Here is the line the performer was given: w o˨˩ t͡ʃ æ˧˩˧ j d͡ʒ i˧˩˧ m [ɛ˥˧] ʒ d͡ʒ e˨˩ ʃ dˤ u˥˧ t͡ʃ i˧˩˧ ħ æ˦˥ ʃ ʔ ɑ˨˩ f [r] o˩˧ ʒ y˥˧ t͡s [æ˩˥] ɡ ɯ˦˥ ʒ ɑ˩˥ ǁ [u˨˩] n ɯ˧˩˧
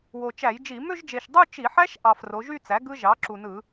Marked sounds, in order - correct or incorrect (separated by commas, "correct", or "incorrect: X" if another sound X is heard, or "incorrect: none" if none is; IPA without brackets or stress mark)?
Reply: incorrect: ø˥˧, correct, correct, correct